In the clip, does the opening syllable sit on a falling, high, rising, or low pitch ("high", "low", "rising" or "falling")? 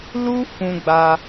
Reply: high